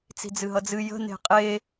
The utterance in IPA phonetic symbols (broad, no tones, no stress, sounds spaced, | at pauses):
t͡s i̤ d͡z ɨ ɦ ʌ d͡z ɨ j ə̤ n e̤ qʼ e